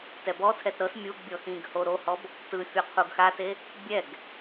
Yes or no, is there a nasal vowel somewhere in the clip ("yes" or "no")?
yes